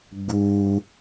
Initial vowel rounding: rounded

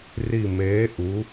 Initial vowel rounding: unrounded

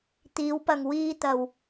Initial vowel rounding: unrounded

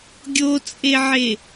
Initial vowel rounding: rounded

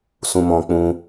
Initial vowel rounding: rounded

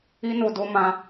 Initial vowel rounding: unrounded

